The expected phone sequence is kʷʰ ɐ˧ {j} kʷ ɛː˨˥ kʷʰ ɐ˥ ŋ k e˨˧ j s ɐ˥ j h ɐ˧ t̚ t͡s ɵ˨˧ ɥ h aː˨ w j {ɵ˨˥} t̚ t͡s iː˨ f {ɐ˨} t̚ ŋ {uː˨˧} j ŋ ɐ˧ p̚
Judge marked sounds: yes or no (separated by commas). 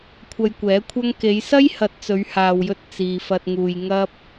yes, no, yes, no